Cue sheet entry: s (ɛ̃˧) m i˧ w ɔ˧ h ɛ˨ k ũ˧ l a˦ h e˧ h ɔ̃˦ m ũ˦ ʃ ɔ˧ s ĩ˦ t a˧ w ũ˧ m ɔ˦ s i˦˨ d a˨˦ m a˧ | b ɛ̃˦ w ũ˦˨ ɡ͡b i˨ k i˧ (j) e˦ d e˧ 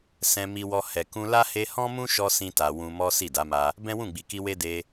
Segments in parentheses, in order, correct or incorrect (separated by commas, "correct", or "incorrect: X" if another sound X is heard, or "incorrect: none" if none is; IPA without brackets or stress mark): correct, incorrect: w